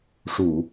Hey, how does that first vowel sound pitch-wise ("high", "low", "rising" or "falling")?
low